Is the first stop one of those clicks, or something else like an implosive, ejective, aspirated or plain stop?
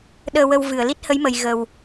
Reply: implosive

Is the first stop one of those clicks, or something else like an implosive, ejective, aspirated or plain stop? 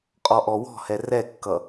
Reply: ejective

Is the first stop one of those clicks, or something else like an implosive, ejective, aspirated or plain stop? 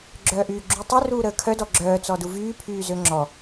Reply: click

